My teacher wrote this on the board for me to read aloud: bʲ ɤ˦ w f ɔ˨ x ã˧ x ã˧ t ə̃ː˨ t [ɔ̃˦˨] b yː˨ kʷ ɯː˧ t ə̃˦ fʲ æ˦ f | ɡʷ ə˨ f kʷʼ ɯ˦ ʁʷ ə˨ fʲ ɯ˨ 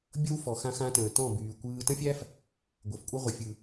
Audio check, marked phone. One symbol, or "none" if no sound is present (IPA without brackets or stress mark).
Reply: ɔ̃˦˨